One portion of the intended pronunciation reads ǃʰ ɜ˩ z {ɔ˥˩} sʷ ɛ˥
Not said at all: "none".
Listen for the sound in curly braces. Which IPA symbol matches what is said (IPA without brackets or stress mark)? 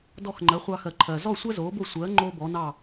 ɔ˥˩